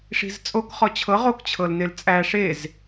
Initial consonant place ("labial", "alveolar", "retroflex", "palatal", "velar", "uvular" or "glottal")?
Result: retroflex